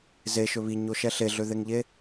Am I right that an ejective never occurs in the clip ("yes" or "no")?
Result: yes